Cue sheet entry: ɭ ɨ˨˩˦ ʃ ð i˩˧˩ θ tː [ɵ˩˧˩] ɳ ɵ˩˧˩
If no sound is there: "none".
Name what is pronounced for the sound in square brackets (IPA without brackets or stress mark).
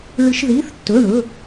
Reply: ɵ˩˧˩